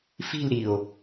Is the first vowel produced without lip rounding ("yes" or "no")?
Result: yes